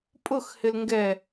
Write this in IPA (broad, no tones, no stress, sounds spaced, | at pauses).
pʼ ʊ x h ɪ l ŋ ɡ ɛ